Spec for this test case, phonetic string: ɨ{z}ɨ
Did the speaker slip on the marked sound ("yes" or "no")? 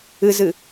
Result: no